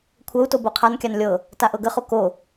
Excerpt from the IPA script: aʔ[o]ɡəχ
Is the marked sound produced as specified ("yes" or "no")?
no